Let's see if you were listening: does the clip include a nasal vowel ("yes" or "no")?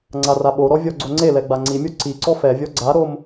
no